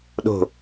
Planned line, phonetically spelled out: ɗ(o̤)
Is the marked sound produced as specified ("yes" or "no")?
yes